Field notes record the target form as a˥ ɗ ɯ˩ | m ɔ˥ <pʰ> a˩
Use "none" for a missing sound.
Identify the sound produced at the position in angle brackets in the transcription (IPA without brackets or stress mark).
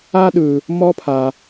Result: pʰ